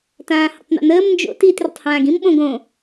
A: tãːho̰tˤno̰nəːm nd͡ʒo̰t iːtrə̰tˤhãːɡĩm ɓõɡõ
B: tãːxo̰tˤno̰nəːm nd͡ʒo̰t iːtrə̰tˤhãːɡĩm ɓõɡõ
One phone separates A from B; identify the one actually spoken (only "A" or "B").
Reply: A